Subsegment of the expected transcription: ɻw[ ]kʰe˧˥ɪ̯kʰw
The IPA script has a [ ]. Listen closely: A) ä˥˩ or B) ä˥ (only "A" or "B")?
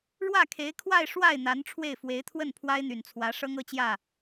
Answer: A